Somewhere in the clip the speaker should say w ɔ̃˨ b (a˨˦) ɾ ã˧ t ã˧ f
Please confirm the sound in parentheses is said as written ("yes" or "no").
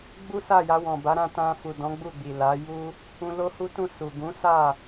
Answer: yes